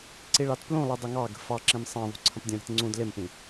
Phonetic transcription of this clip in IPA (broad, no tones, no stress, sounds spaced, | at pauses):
ǀ i ɭ ɑ t p l ũ lˠ i dˤ ʊ ŋ ɑ ɡ ə̤ f ɑ ǁ ĩ m sˤ ɑ̃ ðˤ ṳ ǀʰ ə̃ p dʲ ũ ɾ i̤ t ŋ͡ǀ ũ d l ɪ m p ĩ